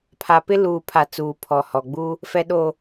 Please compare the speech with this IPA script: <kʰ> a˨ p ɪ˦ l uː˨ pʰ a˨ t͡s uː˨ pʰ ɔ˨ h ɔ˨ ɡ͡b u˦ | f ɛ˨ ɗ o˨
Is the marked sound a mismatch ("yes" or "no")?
yes